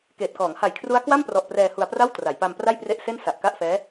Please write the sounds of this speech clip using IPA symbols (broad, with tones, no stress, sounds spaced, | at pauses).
k eː˨˩ t̚ k ɔː˩˦ ŋ h a˨˩ j kʰ r u˦˥ a̯ k w a˥˩ m p r ɔ˨˩ ʔ p r ɛː˧ h u˧ a̯ p r a˥˩ w t r a˩˦ j p a˧ m p r a˥˩ j p r e˦˥ ʔ s e˥˩ n s a˨˩ ʔ k a˥˩ ʔ f ɛː˦˥